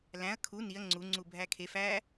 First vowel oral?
no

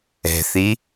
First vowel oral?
yes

